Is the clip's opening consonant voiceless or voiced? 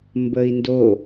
voiced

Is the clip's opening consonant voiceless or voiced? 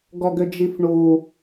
voiced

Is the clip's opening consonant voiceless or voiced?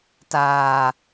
voiceless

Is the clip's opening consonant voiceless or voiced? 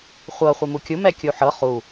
voiceless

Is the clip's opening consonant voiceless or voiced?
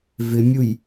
voiced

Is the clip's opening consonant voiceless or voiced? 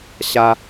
voiceless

